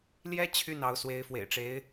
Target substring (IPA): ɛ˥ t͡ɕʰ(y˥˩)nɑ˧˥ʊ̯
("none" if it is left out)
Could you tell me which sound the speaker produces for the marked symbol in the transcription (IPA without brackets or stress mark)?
y˥˩